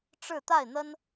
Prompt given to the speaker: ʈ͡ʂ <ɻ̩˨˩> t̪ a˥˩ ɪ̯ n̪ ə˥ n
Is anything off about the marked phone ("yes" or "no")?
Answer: yes